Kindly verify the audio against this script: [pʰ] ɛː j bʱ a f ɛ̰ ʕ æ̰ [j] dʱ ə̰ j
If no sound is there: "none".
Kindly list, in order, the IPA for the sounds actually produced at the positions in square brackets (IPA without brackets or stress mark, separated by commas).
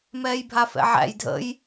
m, j